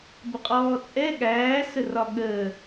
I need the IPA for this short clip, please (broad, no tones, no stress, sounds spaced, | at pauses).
b ʊ qʼ ɔː t͡sʼ ɛ ɠ æː s ə r ɒ ɠ əː